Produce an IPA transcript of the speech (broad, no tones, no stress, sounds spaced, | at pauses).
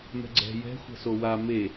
m ɛ̤ ɡ͡ǀ ɛ̤ j ɛ̤ xʷ ɛ̤ s o w a m e